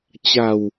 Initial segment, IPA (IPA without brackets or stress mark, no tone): t͡ɕ